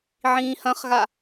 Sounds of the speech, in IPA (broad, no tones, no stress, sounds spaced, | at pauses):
ʕ ĩː h ɐ̃ χ ɣ a